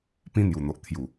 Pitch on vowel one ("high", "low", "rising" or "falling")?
high